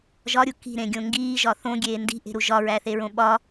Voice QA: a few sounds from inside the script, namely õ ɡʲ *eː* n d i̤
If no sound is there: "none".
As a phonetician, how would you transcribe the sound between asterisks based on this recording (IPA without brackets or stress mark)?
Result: eː